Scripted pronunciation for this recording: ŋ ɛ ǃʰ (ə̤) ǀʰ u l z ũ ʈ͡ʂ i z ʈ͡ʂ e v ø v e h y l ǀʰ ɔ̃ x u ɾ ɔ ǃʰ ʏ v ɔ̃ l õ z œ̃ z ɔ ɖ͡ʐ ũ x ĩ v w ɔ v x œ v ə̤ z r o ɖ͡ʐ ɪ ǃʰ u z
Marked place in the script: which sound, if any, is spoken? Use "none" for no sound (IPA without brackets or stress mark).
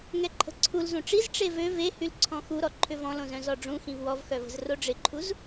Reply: ə̤